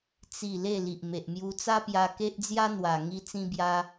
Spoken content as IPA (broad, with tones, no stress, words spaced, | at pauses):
t͡si˥˧ le˥˧li˨ʔ me˨ʔmju˧t͡sa˦pja˧ ke˦ʔd͡zja˦n̪wa˨˩ ŋi˧t͡sĩ˧bja˧